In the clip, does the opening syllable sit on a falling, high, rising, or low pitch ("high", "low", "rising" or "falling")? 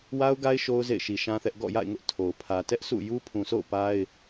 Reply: high